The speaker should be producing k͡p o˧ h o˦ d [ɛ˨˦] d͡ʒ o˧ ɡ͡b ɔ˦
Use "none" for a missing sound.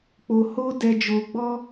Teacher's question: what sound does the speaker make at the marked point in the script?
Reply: ɛ˧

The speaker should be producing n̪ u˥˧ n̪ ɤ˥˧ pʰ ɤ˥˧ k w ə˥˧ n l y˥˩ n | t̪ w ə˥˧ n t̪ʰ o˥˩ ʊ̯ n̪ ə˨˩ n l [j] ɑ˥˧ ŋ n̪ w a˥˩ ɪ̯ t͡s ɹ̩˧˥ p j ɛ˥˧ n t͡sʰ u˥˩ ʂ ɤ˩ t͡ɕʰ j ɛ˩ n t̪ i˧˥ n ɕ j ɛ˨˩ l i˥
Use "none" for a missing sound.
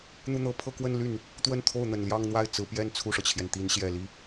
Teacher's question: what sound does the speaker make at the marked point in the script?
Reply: j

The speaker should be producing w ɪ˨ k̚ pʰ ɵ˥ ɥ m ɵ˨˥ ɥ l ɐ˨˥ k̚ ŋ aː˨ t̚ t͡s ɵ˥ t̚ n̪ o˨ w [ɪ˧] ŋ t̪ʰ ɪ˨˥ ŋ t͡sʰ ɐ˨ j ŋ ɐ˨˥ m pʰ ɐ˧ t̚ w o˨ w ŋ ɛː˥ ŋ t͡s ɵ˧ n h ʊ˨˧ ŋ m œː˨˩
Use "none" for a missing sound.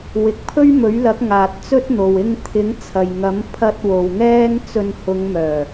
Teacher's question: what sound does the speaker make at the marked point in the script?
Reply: ɪ˧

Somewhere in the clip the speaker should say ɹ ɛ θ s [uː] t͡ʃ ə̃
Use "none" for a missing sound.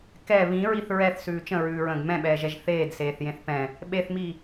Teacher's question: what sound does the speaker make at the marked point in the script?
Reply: ʉː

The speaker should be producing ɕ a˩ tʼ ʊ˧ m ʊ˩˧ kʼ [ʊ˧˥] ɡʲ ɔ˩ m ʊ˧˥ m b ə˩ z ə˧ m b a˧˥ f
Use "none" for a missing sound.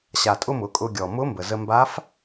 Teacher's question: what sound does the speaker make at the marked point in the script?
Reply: ʊ˧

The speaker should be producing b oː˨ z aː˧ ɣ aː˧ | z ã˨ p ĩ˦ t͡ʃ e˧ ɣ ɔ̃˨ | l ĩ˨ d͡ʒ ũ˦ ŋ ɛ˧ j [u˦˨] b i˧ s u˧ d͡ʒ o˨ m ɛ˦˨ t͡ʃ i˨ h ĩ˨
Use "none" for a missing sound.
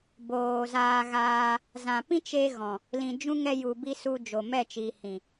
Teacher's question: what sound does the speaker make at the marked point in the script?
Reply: u˨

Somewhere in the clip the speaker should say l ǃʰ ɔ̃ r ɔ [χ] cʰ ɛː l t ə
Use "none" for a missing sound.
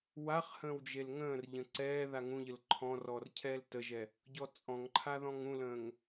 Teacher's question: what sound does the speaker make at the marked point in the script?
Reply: r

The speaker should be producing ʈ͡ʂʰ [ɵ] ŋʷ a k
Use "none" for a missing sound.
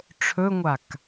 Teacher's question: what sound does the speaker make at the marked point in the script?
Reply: ɵ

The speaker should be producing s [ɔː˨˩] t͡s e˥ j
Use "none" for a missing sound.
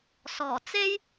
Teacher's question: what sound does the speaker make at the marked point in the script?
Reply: ɔː˨˩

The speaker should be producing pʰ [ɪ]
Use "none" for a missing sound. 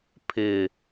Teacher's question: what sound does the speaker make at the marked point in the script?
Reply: ɪ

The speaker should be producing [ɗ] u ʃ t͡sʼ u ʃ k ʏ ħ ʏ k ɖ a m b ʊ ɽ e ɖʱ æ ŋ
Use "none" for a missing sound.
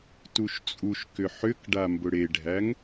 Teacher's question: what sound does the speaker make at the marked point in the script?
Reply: t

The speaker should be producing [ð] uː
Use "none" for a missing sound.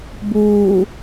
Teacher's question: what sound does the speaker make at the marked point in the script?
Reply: b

